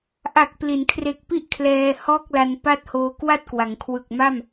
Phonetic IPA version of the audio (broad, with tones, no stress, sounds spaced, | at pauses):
ʔ a˨˩ k̚ p l i˩˦ n kʰ r e˨˩ k̚ p i˥˩ ʔ kʰ l ɛː˧ h ɔː˥˩ k̚ l a˧ n p a˥˩ t̚ h oː˦˥ k w a˥˩ t̚ k w a˩˦ ŋ kʰ w ɯ˨˩ k̚ m a˥˩ m